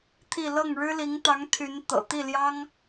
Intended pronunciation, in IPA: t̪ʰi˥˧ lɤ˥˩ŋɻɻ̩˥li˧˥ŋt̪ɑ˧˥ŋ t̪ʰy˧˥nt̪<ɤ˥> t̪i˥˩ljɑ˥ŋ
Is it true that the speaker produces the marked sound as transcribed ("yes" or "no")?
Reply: no